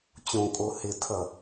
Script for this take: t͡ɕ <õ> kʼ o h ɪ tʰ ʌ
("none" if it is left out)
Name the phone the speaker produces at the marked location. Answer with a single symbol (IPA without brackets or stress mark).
õ